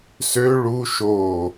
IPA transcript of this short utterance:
s ø ɭ u ʃ o

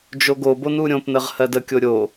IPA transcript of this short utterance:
d͡ʒ o ɡ o b o n u ɾʲ õ p n ə ʁ h ɜ d ə kʲ o ɾʲ o

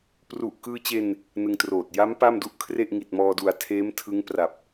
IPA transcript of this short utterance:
p r u˨˩ ʔ k ɯː˧ t͡ɕ e˧ n | n ɯ˧ ŋ t r oː˨˩ t̚ j a˦˥ m p a˥˩ m d u˥˩ ʔ kʰ r e˥˩ ʔ ŋ i˨˩ t̚ m ɔː˧ d u˨˩ a̯ tʰ eː˦˥ m tʰ ɯ˦˥ ŋ p r a˨˩ p̚

